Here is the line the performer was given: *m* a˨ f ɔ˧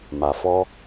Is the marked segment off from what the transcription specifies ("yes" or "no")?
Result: no